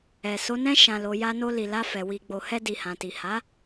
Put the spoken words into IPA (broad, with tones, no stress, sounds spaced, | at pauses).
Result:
ɛ˨ s o˨˦ n ɛ̃˦ ʃ ã˧ l o˧ j a˧ n o˧ l i˨ l a˧ f ɛ˨ w i˧ ɡ͡b o˧ h ɛ˧ d i˨ h ã˨ t i˨ h a˨˦